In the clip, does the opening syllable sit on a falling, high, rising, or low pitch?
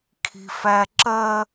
low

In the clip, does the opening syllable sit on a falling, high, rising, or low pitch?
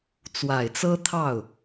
low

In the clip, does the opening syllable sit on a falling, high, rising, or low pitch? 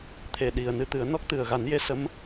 low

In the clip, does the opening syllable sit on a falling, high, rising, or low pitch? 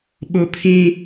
falling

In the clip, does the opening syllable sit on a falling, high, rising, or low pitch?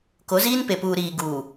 rising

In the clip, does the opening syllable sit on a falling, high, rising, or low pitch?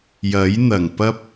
rising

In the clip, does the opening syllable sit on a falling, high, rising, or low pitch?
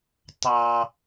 high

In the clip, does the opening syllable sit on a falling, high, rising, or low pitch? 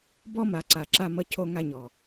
high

